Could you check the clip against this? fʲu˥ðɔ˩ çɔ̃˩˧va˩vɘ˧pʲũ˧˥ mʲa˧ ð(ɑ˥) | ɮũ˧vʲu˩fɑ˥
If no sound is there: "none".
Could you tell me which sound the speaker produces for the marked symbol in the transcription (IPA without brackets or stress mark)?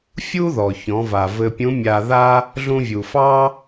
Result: a˥